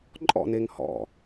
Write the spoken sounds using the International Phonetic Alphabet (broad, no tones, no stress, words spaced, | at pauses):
ǃʼɔ̰neŋ hɔ̰